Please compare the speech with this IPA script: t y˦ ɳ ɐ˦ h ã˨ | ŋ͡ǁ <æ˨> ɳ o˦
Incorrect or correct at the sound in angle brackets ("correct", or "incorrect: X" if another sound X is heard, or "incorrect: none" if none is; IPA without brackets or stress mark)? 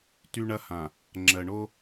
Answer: incorrect: ɜ˨